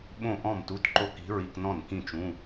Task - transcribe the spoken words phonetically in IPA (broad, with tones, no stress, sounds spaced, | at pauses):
ɓ õ˥˩ ʔ ɔ̃˥˩ m t u˧˥˧ t ǃ o˥˩ k i̤˧˥ ɹ i˧˥˧ k n ɔ̃˥˩ n k ĩ˥˩ t͡ʃ ũ˧˥˧